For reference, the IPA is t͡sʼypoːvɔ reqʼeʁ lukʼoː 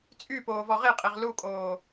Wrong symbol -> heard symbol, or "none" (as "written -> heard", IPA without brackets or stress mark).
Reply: r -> ʁ